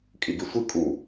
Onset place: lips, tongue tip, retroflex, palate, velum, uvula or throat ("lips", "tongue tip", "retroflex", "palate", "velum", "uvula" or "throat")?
velum